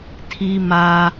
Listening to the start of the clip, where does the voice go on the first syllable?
high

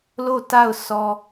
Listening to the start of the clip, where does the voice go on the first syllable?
falling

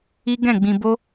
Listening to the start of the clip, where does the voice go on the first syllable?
high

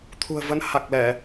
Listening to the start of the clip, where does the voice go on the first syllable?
low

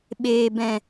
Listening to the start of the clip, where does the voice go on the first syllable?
low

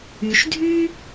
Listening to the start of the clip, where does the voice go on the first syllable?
low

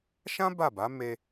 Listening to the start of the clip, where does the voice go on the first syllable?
high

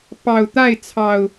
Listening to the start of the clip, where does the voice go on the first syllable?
low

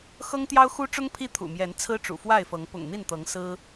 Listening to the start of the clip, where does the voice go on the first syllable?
high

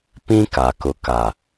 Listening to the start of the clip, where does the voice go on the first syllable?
high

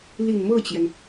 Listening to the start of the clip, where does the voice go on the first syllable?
low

